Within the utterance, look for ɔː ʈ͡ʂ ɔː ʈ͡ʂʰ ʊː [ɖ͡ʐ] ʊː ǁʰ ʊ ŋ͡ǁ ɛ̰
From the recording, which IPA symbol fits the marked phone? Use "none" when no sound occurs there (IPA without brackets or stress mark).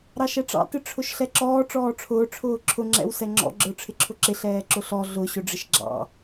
ʈ͡ʂʰ